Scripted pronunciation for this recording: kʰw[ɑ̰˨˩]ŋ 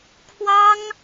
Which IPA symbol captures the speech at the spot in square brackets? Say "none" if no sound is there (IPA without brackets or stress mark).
ɑ˥